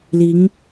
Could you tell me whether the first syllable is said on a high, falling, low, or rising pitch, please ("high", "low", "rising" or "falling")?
rising